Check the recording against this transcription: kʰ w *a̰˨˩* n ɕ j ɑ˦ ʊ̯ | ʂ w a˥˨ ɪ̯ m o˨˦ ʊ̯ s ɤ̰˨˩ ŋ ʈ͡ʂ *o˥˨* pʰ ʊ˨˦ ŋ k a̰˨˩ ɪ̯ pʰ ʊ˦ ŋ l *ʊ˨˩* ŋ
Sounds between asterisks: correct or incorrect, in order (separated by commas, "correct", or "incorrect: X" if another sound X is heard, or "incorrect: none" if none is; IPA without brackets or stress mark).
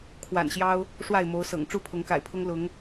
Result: correct, incorrect: u˥˨, incorrect: ʊ˨˦